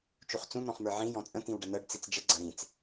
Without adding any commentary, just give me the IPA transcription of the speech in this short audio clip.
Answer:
t͡ʃuχt͡sũ n̪ɔ̃χmə˞ʕĩ jɔ̃t͡sʼə̃ t̪ĩwɖɐnɤɖ t͡sit͡sd͡ʒə ɡ͡ǀɐɾĩt͡s

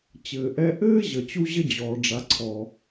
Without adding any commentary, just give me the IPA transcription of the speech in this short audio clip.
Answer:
t͡ɕɘː˩ʔɛ˧ʔɘː˥ʑə˩ t͡ɕu˥ʑə˥d͡ʑɔː˩ ɖ͡ʐa˩ǀʰɔ˩

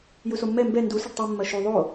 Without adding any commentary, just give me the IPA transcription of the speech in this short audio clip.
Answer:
jusomːɛ mbɛ ndu səɖtˤu mːɐʃu ðˤo

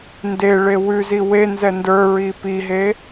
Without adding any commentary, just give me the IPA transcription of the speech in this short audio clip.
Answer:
ndeɭe wʉzi wenzɛ ndə˞ɹi piɦe

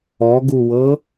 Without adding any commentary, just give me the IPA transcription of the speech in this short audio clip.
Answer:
ɔɡuwɤ

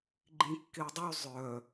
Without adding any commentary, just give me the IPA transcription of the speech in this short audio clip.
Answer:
ɡ͡ǃĩkːedˤy zˤœ

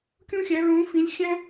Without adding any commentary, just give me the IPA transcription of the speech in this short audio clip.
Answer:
kʲũ˥xʲæ˧˥ɹũː˧˥fĩ˧˥lʲ xʲæ̃˥

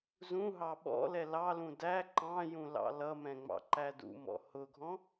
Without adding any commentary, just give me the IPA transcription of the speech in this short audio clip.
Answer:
zũ ɦɑɓɔ̰lɛ lɑlũ dæ ǃɑ̃jũ lɑ̰lʌmɛ̃ ŋ͡mɑ̰ǃædṵmɔ̰ hʊɡʱɔ̃

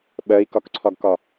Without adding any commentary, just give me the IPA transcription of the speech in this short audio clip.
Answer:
ɓɜi̯kɒkǀʰɒɡkɒ

